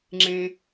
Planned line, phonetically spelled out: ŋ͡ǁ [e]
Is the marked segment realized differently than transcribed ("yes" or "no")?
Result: yes